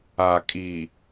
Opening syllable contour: low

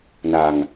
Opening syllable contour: low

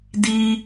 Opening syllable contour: high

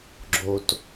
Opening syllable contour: low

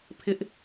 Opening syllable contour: high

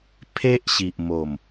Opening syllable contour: high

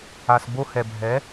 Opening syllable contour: low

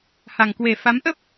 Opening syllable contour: low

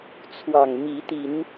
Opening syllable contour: low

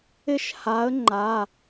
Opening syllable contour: falling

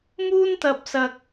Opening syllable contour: high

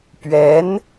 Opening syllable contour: rising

